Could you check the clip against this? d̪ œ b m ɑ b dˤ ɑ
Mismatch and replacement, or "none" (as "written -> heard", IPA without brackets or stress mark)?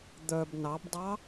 m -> n